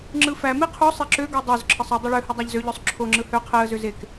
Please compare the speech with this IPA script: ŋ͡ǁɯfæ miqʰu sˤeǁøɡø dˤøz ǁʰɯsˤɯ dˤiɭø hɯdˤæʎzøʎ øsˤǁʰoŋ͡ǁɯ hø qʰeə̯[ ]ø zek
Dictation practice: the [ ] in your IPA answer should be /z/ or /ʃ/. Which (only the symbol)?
z